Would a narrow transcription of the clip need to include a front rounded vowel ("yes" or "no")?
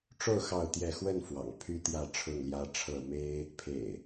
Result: yes